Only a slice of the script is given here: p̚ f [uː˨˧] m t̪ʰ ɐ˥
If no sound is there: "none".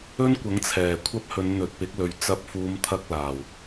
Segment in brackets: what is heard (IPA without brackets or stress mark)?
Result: uː˨˧